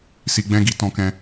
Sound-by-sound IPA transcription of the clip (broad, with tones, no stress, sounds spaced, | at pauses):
s i˧ ɡ͡b ɛ̃˦ ɡ i˧ t ɔ̃˧ k ɛ̃˧